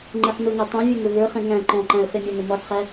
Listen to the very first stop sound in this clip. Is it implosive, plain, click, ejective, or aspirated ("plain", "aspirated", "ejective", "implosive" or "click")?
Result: click